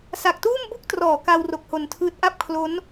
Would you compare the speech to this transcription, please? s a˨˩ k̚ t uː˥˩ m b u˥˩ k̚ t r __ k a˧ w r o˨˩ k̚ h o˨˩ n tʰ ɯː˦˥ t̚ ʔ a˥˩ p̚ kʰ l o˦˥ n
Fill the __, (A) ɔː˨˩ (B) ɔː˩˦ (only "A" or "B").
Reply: B